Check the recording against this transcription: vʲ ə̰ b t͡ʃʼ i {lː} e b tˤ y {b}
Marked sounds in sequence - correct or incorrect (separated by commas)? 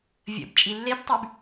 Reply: correct, correct